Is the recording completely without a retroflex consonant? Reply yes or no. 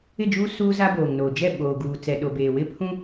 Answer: yes